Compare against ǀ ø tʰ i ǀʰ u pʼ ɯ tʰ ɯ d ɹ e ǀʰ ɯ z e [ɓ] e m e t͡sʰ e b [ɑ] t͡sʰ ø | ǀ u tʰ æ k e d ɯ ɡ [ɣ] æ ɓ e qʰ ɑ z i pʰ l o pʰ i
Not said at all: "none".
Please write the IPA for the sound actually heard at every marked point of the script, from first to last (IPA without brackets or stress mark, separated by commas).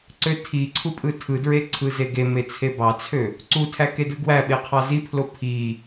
ɡ, ɑ, w